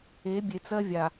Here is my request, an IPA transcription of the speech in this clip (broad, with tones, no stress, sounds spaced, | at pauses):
e˨˦ bʲ e˨ t͡s ɜ˦ vʲ a˨